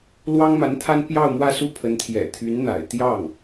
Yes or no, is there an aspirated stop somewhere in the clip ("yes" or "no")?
yes